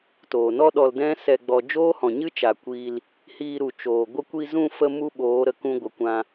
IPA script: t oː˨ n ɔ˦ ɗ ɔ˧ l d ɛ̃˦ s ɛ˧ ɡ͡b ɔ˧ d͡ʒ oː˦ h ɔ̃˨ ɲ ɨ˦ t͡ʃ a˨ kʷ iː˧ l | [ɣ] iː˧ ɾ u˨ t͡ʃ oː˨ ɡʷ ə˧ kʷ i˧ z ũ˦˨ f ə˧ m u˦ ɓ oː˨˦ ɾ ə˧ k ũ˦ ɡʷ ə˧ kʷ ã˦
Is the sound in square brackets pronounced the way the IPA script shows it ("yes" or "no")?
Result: no